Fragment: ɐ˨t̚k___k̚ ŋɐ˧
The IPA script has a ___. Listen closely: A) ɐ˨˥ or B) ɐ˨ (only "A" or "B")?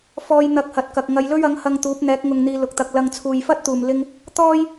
B